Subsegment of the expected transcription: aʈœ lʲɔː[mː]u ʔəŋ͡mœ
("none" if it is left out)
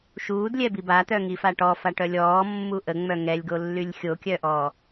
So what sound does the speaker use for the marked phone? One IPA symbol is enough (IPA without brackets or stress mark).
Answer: mː